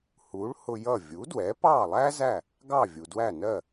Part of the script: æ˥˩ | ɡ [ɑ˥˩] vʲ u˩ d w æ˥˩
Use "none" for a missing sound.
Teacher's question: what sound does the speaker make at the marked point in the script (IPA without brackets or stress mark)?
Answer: ɑ˥˩